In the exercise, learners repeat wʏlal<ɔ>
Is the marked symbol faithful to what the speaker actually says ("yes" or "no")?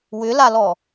yes